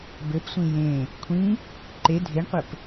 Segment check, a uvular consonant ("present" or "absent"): present